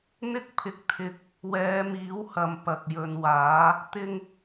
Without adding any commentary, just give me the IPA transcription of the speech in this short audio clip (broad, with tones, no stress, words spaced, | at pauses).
n̪ɪ˥k̚pʰɪ˧k̚ t̪ʰɪ˧k̚ | wɛː˨˧miː˨˥whɐ˨m pɐ˨k̚jɵ˨nwaː˨˥ | t̪ɪ˥ŋ